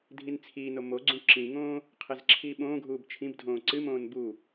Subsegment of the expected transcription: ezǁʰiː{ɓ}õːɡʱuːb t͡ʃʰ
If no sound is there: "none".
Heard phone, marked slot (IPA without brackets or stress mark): ɓ